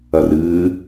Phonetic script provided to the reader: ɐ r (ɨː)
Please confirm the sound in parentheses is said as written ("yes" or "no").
yes